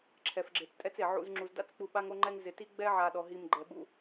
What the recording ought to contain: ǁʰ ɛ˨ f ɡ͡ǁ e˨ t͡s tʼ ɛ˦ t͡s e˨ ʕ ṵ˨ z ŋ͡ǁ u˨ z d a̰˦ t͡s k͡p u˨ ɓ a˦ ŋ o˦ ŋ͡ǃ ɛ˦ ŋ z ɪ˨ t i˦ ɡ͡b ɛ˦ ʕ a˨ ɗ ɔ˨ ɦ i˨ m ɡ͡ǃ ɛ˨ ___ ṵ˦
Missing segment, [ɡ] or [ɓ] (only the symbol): ɓ